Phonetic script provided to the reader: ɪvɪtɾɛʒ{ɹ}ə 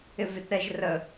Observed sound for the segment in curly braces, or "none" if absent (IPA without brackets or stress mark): r